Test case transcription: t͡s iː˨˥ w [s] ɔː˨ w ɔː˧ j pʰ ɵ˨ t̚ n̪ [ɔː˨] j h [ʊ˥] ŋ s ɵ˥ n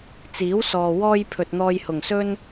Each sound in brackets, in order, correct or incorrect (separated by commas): correct, incorrect, incorrect